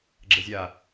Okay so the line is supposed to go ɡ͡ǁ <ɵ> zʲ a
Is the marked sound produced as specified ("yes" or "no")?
no